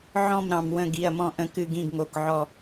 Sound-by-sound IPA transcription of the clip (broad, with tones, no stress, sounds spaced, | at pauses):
ʕ ɔ̃˦˨ m ɾ ɑ̃˩ m w ə̃˦˨ ɡ i˩˧˩ ɐ̯ m ɔ̃˦˨ ʔ ə̃˦˨ k ɨ˦˨ ɡ ĩ˦˨ ɡ ŋ o˩˧˩ k ʕ ɔ˦˨